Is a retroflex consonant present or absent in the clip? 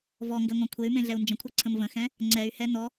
absent